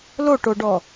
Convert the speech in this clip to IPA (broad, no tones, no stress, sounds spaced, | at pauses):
l o ʈ o ɖ ɔ